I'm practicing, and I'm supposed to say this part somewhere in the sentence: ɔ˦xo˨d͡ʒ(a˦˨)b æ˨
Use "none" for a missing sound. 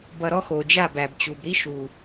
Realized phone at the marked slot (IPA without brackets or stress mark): a˦˨